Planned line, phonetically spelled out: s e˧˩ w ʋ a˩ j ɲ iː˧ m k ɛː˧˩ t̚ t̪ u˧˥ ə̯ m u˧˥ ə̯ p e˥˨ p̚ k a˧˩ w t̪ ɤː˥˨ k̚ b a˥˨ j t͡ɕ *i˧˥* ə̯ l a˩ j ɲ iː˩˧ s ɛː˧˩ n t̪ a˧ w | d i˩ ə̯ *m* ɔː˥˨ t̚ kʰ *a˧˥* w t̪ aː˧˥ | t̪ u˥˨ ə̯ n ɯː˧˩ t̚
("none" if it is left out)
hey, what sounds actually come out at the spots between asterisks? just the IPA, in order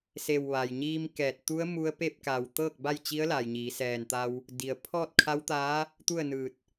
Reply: i˧˥, pʰ, a˧˥

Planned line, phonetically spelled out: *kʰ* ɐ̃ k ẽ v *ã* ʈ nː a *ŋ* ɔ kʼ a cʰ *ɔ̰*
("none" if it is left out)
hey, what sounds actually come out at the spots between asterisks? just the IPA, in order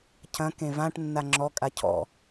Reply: cʰ, ã, ŋ͡ǁ, ɔ̰

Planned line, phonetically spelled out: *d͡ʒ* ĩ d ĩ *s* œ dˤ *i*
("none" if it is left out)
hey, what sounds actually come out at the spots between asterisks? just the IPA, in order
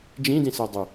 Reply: d͡ʒ, s, y

